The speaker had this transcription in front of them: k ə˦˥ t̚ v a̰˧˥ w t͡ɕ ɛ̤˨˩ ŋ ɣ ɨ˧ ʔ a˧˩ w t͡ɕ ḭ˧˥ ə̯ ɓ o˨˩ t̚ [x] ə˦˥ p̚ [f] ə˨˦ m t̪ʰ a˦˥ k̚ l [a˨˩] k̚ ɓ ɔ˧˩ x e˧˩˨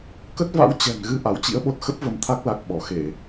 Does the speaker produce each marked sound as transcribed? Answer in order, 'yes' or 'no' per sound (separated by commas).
yes, no, yes